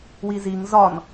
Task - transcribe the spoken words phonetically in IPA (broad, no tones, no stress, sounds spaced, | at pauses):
w i z i ŋ z ɒ n